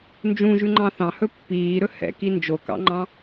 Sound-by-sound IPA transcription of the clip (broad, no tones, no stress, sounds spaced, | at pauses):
n d͡ʒ ũ ʒ ʉ ŋ͡ǃ ɑ̃ θ ɑ̃ h ɵ pː iː ɾ ɵ h ɛ̰ k i n d͡ʒ o k ɑ̰ ŋ͡ǃ ɑ̃